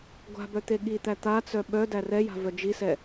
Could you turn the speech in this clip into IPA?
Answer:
ɡʷa̤bœ t̪eɠit̪æ t̪at͡sœ ɓœ dærɛja̤ vœd͡ʒisɛ

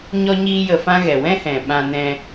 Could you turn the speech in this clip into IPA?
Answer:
ɲɔ˦ɲiː˦jə˧fã˦ ɣɛ˨wɛ̃˦hɛ̃˨ ɓã˧nɛ̃˧

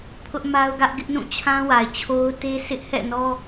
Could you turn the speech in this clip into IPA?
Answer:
pʰʊ˦ʔma˦ʊ̯ɡä˦ʔ ɡɪ˦ʔnũ˦˨t͡ɕʰã˦ wa˨ɪ̯t͡ɕʰo˦ʊ̯ te˦sɪ˦ʔ hɛ̰˦˨nɔ˦

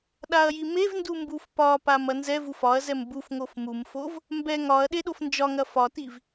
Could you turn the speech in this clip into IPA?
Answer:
ɗaɐ̯jimevndu mbufpɒpam ɐnzɛvuf ɒɐ̯zɛm buf ŋofmumfov | mbɛ ŋɒɐ̯ ɗeɗofnd͡ʒɒŋɐ fɒtiv

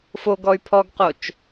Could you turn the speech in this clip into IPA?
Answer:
foɡɔy̯ pʰɔɡqot͡ʃ

